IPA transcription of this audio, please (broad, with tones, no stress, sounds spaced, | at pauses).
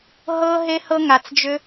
ɦ ɤ˦ ɦ e˦ h ɤ˦ ŋ a˧ t͡s d͡ʒ ʏ˦